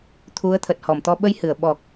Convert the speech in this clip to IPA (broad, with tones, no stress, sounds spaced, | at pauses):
t̪ʰ u˨˦ ə̯ t̪ʰ ə˨˩ t̚ h ɔ˧˩ m t̪ ɔ˧ ɓ ə˧ j h ɨ˧˩ ə̯ ɓ ɔ˨˩ k̚